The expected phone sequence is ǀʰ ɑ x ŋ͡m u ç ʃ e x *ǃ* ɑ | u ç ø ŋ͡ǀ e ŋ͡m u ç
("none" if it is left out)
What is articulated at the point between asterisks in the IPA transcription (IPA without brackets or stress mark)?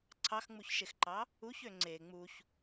ǃ